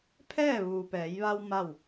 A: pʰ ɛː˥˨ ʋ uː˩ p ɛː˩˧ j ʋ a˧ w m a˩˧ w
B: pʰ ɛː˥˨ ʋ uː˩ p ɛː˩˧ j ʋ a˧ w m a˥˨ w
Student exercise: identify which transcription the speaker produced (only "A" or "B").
B